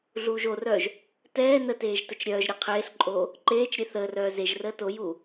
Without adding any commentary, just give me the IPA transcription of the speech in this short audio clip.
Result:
ɮ uː ʒ o r œː ʒ | t ɛː n ə t eː ʒ t ə t͡ʃ ɾʲ œː ʒ ɾʲ ɛ qʰ eː ɬ ǃʼ oː | ǃ eː t͡ʃ ɾʲ e θ əː r œː z e ʒ r əː t o j uː

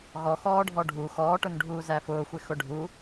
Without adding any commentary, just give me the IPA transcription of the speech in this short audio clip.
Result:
ɣ ɔ x ɔː ɖʱ ɔ ɖʱ u x ɔː ʈ ʊ n ɖʱ uː z æ f ʊː xʷ ɪ x ʊ ɖʱ u

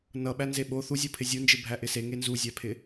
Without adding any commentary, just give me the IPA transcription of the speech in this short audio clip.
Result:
n ʌ ɓ æ n z e ɓ o θ u zʲ o pʰ ɪ zʲ u n d͡ʒ ɪ bʱ æ ʔ ɪ s e ŋ e n z u zʲ æ pʰ ɪ

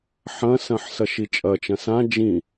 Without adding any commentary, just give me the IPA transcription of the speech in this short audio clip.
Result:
ħ ɐ̃ s ɐ̃ ħ s ɐ ʃ i t͡ʃʼ ɐ t͡ʃ ɐ̃ s ã d͡ʒ ĩ

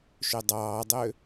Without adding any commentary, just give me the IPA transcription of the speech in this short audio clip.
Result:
ʃ ø dˤ ɑː dˤ ø

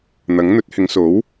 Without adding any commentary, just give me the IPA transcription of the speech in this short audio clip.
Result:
n̪ ɐ˨˥ ŋ n̪ ɵ˨˥ t̚ h ɪ˨˧ ŋ s o˨˥ w

